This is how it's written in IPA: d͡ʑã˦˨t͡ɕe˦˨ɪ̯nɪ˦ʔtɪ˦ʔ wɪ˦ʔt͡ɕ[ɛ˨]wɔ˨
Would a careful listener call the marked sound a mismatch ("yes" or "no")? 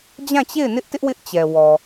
no